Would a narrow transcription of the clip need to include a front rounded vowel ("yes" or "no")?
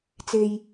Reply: no